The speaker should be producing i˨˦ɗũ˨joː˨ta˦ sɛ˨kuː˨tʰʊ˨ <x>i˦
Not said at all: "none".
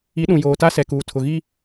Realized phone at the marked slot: ɣ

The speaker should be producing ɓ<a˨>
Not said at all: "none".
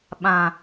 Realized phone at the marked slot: ã˨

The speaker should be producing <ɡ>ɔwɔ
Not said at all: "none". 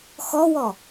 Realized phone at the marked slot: x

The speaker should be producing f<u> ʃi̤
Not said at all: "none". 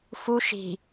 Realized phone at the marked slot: u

